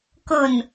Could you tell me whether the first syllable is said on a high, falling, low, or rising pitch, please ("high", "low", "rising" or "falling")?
low